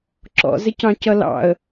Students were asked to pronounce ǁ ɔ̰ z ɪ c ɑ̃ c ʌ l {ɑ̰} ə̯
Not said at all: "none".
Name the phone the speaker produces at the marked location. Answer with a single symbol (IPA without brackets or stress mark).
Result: ɑ̰